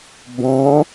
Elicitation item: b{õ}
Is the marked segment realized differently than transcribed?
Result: yes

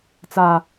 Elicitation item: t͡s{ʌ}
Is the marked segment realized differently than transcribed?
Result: yes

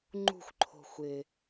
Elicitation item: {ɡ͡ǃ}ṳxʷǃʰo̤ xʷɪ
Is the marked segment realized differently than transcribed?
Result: yes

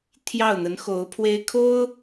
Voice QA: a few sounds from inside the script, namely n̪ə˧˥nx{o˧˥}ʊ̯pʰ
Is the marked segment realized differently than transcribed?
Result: no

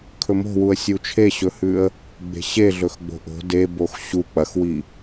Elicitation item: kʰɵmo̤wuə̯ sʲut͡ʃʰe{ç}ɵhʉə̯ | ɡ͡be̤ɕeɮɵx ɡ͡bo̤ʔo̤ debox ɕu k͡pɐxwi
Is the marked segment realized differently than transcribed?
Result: yes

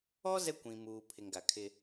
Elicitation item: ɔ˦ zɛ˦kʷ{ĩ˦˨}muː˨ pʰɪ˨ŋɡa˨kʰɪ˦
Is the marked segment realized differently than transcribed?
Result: yes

